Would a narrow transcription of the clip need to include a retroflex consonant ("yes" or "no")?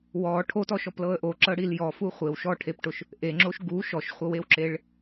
yes